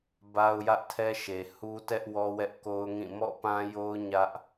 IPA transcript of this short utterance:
ba˦ʊ̯jä˦ʔtʰɛ˦ ʃe˨hu˦tɛ˦ʔ wɔ˦wɛ˦ʔko˦ʊ̯ŋĩ˦˨ mɔ̰˦˨pã˦jo˦ʊ̯ ɲä˦ʔ

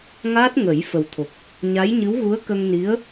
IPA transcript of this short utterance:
ŋa˦˥t̚ŋə˨˩˦j fə˨˩wt̪ʰo˨˩k̚ | ɲa˧˥jɲɨ˧˥wɣu˧˥ə̯ kə˧ŋni˧˥ə̯

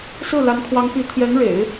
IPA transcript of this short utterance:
sɹ̩˥˩ la˧˥nkʰwɑ˧˥ŋ pi˧˥ t̪ʰjɛ˧˥nɻḛ˨˩˦ɪ̯

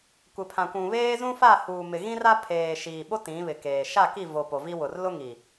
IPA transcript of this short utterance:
kʷɪ˨pʰã˨kʷũ˨βeː˦ zũ˦fa˦˨ huː˨mɪ˨ɣĩ˦ra˦ pʰeː˨ʃiː˨ ɓo˦ tĩ˨˦βɪ˨keː˨ ʃa˦˨ki˦˨vo˨ po˨vi˦wʊ˨r lʊ˦ŋi˨

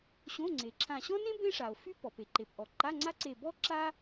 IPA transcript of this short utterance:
ɕõ˧˥˧ŋ͡ǀe˩ǁʰã˧˩ ɕɔ̃˥nẽ˥ bẽ˥ʂa˩o̯fy˥ pɔ˩pe˩ǃe˩pʔɔ˩ ǃa˧˥˧ŋ͡ǀa˥ǀe˧˩ bɔ˥ ǁa˥

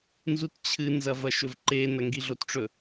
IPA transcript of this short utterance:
nzutt͡ɕʰɨ nzɐvɐʃɵvǃe nɐŋɡiɮotʈ͡ʂɵ

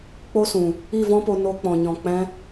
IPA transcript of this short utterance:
k͡po˦sũ˨ | i˦˨vɔ̃˦po˧ no˧ k͡pɔ̃˨ɲɔ̃˨k͡pɛ̃˧

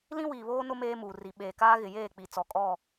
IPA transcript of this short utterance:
lĩ˦wiː˨ βoː˦nʊ˦ meː˦muː˨ ri˨ ɓeː˨kaː˦ ɣɪ˨jeː˦˨k͡pi˨ t͡sɔ˨kʼɔ˦˨

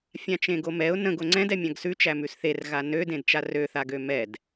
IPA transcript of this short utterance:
fʲãt͡ʃẽɡomɛʊ̯ nə̃ɡ oŋ͡ǀɛ̃d ɛmʲãɡsʉ t͡ʃæmʉsθer ɣanø dẽdt͡ʃarø θaɡømɛd

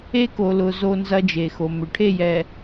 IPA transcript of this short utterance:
e˦ko˨lʊ˨ zo˦nzɐ˦d͡ʒe˨xo˨ mʏ˨ʈʰe˦˨jɛ˨

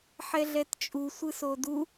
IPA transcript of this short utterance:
ħɛɮɛtt͡ʃʼu sʷɯsodu

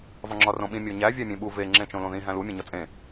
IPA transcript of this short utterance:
vɒŋ͡ǁɒrõɓĩ mʲoɲæ vʲæmʲẽɓu ve ŋ͡ǁẽt͡ʃõlõðĩ ɦæ̃lu mʲẽɲɒt͡sʼẽ

